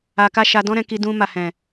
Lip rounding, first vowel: unrounded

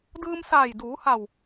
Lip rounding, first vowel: unrounded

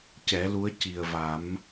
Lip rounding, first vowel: unrounded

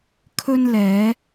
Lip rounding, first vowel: rounded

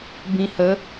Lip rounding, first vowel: unrounded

